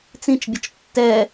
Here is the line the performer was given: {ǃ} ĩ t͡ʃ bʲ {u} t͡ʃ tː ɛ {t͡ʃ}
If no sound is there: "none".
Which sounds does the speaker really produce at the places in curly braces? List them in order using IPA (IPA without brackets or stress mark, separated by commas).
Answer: t͡s, ʊ, none